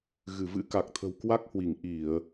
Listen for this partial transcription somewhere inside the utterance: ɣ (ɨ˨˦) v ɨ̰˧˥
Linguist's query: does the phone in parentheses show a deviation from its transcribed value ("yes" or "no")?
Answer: yes